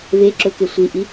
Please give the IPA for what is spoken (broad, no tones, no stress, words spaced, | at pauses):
ve ǁɵke sʷiʔi